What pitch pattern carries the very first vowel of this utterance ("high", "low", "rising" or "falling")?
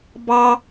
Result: high